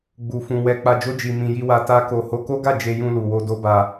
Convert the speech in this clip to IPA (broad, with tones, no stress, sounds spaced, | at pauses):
ɡ͡b u˧ f ũ˧ w ɛ˧ k͡p a˧ d͡ʒ o˦ d͡ʒ i˧ m ĩ˧ j i˧ w a˧ t a˦ k o˧ h o˦ k o˦ ɡ a˦˨ d͡ʒ e˧ j ũ˧ l u˨ w o˧ d o˦ b a˧